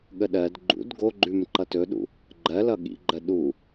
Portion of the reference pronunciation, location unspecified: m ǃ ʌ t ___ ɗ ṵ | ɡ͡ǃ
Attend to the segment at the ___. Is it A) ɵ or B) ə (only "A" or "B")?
A